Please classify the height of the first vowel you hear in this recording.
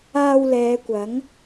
low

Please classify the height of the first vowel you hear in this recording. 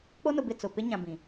mid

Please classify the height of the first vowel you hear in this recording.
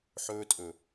mid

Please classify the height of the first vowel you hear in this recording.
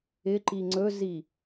high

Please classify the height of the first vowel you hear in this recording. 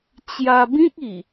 low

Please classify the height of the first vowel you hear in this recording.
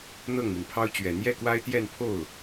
mid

